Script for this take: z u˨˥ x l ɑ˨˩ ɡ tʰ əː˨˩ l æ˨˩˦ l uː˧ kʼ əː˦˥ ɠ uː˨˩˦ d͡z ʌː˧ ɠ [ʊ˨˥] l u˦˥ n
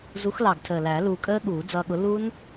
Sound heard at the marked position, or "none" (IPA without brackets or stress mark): ʊ˨˥